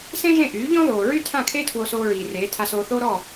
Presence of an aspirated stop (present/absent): present